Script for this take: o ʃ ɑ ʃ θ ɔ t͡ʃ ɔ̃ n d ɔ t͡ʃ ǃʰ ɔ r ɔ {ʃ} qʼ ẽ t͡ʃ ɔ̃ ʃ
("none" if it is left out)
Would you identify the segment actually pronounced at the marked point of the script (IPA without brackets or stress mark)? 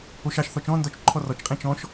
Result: t͡ʃ